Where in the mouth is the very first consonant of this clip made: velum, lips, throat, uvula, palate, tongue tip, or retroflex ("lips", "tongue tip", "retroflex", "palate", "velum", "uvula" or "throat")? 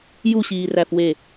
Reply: palate